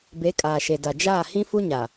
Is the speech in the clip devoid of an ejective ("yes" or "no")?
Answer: no